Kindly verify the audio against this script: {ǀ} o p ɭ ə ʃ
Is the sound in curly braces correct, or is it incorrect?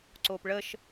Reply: correct